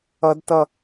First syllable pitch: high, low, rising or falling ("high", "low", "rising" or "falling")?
high